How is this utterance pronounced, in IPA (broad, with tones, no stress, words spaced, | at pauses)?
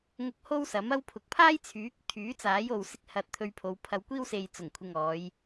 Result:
ŋʊ˥k̚ ho˥wsɐ˨˥mɐ˥wpʰʊ˨˥k̚ pʰaː˥jt͡sʰyː˨˥k̚ t̪ʰyː˨˥t͡saː˨˥jo˨w sɪ˧k̚hɐ˨t̚ t̪ʰɵ˧ɥpʰo˨˧wpʰɐ˧w kʷiː˥wse˨j t͡sʊ˨˩ŋkʷʰɪ˨ŋɔː˨˧j